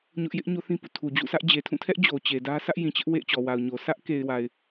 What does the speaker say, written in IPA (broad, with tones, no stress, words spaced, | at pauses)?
ɲʊ˦ʔ jɪ˦ʔ ɲo˦θĩ˦pṵ˦˨ tʰu˨d͡ʑṵ˦˨sʰä˦ʔd͡ʑe˨ tʰũ˦˨tʰɛ˦ʔ d͡ʑo˨t͡ɕe˨dä˦ sʰä˦ʔjĩ˨t͡ɕɪ˦ʔ wḛ˦˨ɪ̯t͡ɕɔ˨wa˨ʊ̯ɲo˨ sä˦ʔ ke˨ɪ̯wa˨ɪ̯